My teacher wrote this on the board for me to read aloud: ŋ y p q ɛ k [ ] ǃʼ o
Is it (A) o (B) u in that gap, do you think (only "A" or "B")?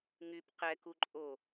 B